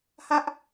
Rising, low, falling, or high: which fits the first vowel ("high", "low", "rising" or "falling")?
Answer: high